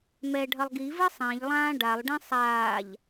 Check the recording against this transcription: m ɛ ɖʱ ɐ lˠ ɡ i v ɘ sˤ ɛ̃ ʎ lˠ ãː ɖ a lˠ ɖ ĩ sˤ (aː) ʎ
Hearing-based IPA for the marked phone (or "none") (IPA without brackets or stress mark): aː